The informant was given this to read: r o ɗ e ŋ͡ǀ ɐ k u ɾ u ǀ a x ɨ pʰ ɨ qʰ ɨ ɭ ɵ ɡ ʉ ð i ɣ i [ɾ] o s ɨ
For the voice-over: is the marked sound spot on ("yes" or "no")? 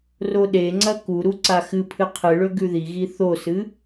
no